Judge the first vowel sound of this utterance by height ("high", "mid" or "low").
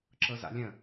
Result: mid